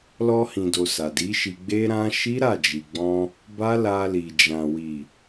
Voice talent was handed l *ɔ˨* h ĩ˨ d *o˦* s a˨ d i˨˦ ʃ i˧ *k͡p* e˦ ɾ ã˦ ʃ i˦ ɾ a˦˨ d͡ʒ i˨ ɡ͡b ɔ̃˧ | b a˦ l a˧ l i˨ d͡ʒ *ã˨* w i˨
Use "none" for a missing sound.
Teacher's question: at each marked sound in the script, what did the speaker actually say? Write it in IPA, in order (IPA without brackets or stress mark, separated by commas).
ɔ˧, o˨, ɡ͡b, ã˨